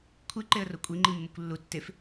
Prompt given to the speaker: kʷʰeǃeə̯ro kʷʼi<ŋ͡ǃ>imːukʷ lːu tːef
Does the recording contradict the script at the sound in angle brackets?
no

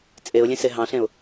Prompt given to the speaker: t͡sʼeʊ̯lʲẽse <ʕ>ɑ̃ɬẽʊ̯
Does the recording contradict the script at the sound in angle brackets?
yes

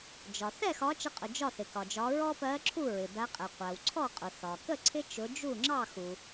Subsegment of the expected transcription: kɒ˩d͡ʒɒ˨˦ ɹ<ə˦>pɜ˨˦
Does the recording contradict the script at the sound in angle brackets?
yes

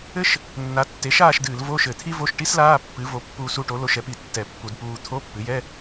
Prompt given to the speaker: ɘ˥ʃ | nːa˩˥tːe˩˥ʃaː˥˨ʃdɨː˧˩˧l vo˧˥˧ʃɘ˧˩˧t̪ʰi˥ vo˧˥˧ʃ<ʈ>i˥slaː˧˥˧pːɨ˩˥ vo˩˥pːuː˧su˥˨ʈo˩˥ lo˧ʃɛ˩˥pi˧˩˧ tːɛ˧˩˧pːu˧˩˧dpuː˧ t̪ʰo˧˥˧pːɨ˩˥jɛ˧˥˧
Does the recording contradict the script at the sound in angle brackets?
no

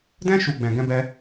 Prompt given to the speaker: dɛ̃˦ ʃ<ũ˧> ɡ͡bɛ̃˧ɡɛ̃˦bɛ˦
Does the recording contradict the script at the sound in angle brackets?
yes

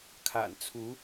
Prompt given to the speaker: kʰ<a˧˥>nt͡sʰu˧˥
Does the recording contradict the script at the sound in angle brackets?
yes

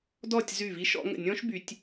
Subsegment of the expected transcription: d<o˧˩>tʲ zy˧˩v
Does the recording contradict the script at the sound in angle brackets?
yes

